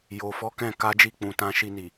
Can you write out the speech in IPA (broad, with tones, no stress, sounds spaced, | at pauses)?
j o˨ f ɔ˨˦ k ɛ̃˦˨ k a˨˦ d͡ʒ i˧ k͡p ũ˨ t ã˧ ʃ i˧ n i˨